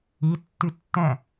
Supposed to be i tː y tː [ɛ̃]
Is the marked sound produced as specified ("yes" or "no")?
yes